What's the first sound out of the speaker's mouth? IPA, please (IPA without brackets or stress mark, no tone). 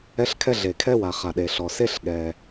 ɛ